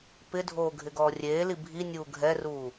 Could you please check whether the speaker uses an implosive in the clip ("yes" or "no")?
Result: no